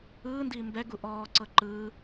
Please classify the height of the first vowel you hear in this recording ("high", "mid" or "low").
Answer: high